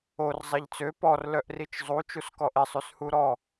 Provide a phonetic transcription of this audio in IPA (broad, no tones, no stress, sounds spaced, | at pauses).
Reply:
o r zˤ e ʎ t͡s ø p ɔ r l œ ʔ r i t͡ʃ zˤ u t͡ʃ u s k ɔ ʔ e sˤ y s h u ɾ ɔ